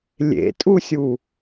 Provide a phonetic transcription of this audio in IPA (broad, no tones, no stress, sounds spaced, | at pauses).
lʲ ḛ tʼ u sʲ u